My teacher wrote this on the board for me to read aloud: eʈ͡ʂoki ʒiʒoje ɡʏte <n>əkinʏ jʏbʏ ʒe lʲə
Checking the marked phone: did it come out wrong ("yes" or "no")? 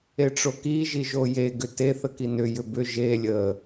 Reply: yes